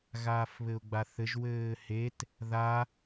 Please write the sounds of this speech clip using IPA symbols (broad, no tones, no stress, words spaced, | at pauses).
ɣaːfβɘʊ̯ɡ͡baθɘʒ wɘːhet | ða